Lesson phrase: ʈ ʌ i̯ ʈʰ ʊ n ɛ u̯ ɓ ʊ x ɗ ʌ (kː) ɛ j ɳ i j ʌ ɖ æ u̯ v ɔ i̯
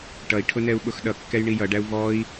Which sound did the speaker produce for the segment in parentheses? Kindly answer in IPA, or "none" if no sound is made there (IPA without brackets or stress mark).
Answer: kː